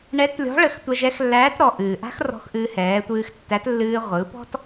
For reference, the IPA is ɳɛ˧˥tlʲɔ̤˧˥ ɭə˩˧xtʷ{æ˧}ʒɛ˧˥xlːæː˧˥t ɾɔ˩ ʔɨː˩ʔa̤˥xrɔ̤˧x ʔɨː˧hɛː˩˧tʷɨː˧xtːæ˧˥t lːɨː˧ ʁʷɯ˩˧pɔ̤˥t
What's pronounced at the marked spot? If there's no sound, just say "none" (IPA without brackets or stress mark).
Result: ɛ˧